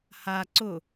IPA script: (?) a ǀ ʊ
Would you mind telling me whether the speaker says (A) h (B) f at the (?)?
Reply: A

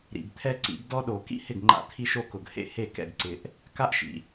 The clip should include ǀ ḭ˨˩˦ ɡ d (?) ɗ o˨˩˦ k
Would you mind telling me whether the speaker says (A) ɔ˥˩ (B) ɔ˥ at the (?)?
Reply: B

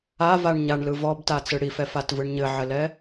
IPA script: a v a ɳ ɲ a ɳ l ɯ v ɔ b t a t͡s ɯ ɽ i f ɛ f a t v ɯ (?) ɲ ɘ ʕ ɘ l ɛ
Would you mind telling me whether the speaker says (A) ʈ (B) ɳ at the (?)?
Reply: B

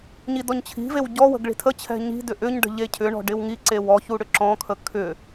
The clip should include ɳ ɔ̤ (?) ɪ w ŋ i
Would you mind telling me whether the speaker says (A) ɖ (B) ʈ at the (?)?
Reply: A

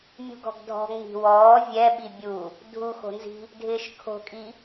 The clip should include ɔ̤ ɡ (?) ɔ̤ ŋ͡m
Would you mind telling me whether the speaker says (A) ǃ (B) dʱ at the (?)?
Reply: B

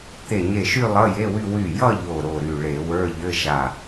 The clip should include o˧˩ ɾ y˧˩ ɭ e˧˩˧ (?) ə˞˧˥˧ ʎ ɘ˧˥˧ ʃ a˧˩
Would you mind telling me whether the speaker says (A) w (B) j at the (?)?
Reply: A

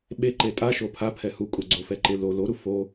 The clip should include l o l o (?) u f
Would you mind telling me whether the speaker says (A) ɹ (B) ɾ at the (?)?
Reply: B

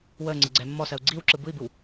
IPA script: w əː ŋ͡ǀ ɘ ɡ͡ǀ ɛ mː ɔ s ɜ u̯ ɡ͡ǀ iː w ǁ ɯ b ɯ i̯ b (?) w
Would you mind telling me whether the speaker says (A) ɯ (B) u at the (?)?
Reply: A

